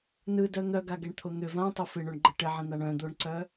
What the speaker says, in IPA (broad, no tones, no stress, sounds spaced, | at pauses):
n ɯ d œ n̪ œ ɡ a ɡ ɛ ɳ t̪ʰ o n̪ ʏ v ã tˤ o f ɪ ɳ o ɳ ɡ͡ǃ ə ʈ ɪ ʕ ə̃ n̪ a ɳ œ̃ d̪ o ɳ ǀ œ